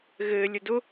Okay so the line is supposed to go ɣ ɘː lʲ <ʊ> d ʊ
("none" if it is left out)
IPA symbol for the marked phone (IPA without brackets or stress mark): ʊ